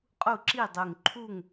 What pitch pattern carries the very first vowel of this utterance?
falling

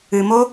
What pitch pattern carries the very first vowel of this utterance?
low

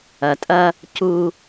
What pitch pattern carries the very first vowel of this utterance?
low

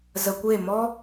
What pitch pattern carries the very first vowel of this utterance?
low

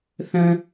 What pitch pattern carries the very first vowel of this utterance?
low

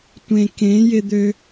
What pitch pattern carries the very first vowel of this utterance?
low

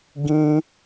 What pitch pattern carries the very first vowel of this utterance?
high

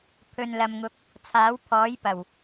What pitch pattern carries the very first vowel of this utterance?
low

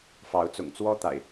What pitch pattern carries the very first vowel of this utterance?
rising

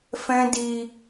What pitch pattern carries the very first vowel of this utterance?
high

